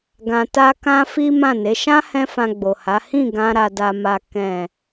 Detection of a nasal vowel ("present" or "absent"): present